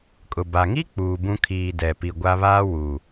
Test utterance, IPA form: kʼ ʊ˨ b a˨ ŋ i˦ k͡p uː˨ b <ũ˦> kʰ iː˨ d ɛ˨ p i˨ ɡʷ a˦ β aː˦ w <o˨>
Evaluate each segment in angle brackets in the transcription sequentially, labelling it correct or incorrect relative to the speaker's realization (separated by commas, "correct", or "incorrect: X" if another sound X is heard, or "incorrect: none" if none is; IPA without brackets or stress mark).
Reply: correct, incorrect: u˨